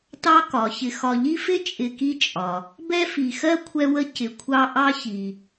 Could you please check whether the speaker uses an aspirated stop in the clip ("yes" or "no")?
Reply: yes